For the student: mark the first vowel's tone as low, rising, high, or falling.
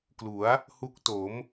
rising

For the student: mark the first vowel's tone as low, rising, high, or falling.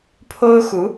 high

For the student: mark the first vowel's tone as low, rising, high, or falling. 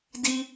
high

